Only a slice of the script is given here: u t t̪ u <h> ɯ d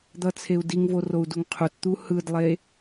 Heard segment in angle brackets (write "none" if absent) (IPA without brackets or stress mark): h